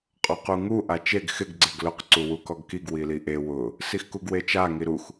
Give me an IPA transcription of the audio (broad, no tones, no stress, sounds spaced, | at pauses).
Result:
qʼ ɔ q u ŋ u ʔ a t͡ʃ e ɡ x ɪ ɡ ɡ͡ǀ e ɡ l ʊ q ǀ u w u k ɔ ɡ k i ɡ w i l i ʔ e w ʊ | s i x k u ɡ w e t͡ʃ a ŋ i ɾ u x